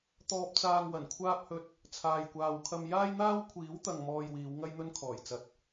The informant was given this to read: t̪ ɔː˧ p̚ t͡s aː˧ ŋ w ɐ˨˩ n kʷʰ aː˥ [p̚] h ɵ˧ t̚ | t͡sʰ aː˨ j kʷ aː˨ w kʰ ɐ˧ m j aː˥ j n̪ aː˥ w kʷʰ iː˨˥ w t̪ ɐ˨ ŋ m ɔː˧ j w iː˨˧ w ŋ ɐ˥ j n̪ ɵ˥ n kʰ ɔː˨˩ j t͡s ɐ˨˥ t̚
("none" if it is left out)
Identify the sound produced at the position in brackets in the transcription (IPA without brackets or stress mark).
p̚